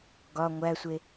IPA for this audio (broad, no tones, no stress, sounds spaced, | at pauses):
ɡ ɒ ŋʷ æ sʷ e